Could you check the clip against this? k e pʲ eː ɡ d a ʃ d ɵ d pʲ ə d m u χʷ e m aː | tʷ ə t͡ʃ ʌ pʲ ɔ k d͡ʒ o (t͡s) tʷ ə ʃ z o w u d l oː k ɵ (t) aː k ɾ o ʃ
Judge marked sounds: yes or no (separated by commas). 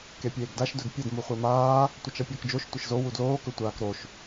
no, no